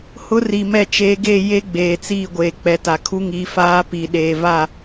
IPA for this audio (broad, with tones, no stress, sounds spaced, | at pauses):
h ʊ˦ r i˨ m ɛ˦˨ t͡ʃ eː˦ ɡ e˦˨ j e˦ ɡ͡b eː˨ t͡s iː˦˨ ɡʷ eː˨ k͡p ɛ˨ t a˨ kʰ u˦ ŋ i˨˦ f aː˦ p i˨ ɗ eː˨ v a˦˨